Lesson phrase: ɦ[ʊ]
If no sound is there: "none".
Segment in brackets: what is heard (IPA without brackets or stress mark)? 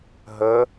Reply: ə